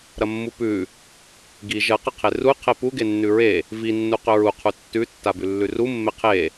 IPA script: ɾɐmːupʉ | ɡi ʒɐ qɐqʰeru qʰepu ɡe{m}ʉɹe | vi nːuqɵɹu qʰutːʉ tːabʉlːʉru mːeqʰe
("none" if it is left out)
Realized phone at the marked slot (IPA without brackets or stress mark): nː